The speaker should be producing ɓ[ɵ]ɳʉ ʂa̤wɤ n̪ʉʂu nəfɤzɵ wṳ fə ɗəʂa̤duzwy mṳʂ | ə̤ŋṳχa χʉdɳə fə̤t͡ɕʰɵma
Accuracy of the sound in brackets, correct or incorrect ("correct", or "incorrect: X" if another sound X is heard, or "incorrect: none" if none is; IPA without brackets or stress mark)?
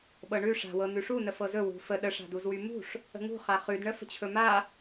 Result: incorrect: ɤ